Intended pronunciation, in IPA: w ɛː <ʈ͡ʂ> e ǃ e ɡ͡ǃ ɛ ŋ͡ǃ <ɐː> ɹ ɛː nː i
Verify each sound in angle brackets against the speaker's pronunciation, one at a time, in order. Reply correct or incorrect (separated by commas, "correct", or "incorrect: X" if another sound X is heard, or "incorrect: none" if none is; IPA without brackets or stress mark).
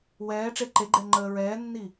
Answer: correct, incorrect: əː